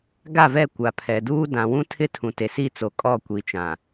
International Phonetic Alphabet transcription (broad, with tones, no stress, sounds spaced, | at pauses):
ɡ a˦˨ v ɛ˦˨ kʷ a˨ pʰ ɛ˨ d uː˦ d ã˨ w ũ˦ tʰ ɪ˦ tʰ ũ˨ t e˨ s i˦˨ t͡s o˨ kʼ ɔ˦˨ kʷ i˨ t͡ʃ ã˨